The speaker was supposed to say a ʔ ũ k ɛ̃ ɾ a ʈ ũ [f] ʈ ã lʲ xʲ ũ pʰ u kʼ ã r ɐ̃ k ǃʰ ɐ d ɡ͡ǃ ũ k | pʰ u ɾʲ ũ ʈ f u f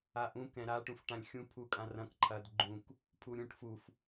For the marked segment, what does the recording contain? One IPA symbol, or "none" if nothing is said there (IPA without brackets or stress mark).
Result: f